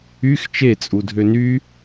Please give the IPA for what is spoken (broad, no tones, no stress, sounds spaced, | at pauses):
y x t͡ʃ e t͡sʼ u dʱ ø n y